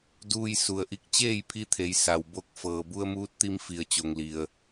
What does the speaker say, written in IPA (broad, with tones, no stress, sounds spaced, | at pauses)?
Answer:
d uː˧ j s u˩ ə̯ ʔ i˧ k̚ t͡ɕ eː˥˨ j pʰ i˧ t̪ʰ e˩˧ j s a˩ w b o˧˩ k̚ f ɤː˩ b u˧ ə̯ m uː˧˥ t̚ t̪ i˧ m f i˧˩ ə̯ t͡ɕ o˩ ŋ l i˩ ə̯